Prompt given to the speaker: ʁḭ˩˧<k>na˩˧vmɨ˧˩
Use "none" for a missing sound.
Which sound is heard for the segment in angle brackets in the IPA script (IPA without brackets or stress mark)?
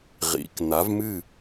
k